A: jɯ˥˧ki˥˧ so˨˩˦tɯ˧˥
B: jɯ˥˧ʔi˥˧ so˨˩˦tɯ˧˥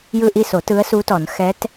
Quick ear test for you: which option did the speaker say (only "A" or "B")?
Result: B